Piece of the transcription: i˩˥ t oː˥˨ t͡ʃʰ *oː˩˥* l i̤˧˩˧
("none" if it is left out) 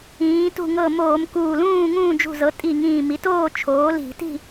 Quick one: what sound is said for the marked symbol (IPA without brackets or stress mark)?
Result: oː˩˥